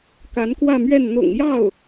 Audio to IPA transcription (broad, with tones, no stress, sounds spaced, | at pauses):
k a˧˥ n k w ä˥˧ m ɥ ɛ˥˩ n n̪ ʊ̰˨˩ ŋ j ɑ˥˩ ʊ̯